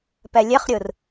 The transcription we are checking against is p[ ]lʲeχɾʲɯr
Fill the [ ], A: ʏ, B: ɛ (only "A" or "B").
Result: B